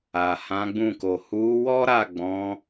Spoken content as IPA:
a˨ h ã˨˦ ɡ͡b ũ˦˨ k o˨ h u˨˦ w ɔ˦ ɾ a˦˨ ɡ͡b ɔ̃˨˦

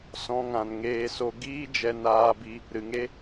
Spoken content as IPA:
s ɔ̃˧ ŋ ã˨ n ŋ eː˧ s o˧ ɡ iː˦ d͡ʒ ɛ˧ n aː˧ b i˧ | ɾ ɨ˨ ŋ e˦

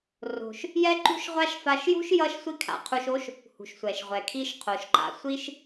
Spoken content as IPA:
r o̤˩ ʃ | j ɛ˥ ǃ ṳ˥ ʃ ʁʷ a˥ ʃ f a˧ ʃ j ṳ˥ ʃ j ʌ˥ ʃ sʷ i˥ kʰ a̰˧ qʰ u˧ ʃ o˥ ʃ | h ṳ˩ ʃ sʷ ɛ˩ ʃ ʁʷ ɛ˩ kʰ i˧ ʃ qʰ o˩ ʃ ǃ a̰˧ sʷ i˥ ʃ

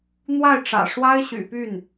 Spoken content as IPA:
n̪ w a˥˩ ɪ̯ ʈ͡ʂ ä̰˨˩ ʂ w a˥ ɪ̯ ɕ y̰˨˩ p y˥˩ n

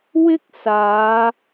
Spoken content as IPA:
w ɪ˥ k̚ s aː˨˧

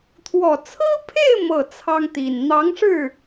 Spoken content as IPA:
t̪ʰ w ɔ˨˩ t͡sʰ ɹ̩˥ pʰ e˥˧ ɪ̯ m ɤ˥˩ t͡sʰ ɑ˥ ŋ t̪ i˨˩ n n̪ ɑ˧˥ ŋ ʂ ɻ̩˥˩

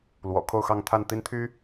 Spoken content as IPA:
l w ɔ̰˨˩ kʰ o˥˧ ʊ̯ x ɑ˥˧ ŋ t̪ʰ a˥˩ n t̪ i˥ n t̪ʰ y˥

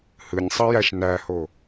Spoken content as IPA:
h ɯ nʲ sˤ ɯ j æ ʃ n æ h o

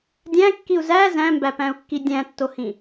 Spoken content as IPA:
dʲ æ̃ kː i u̯ z æ z æ̃ m b æ p æ̃ u̯ kː i dʲ æ̃ tː o h ĩ

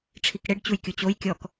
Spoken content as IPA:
ʈ͡ʂʰ i k ɽ e ɖ t͡ɕ u j kʲ u t͡ɕ o j kʲ ɔ k

